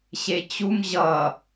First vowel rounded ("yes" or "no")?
no